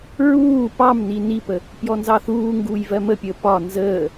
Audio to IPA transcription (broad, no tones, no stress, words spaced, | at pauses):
ɹuː pɑmni nipə | pjɔnzɑθuːŋɡuːj vɜməpʲəː pɒ nzəː